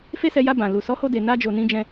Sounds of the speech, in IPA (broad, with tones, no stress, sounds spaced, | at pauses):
f e˦ s ɛ˧ j a˧ b ã˨ l u˨ s ɔ˨˦ h o˧ d e˨ n a˧ d͡ʒ o˨ n ĩ˧ d͡ʒ ɛ̃˧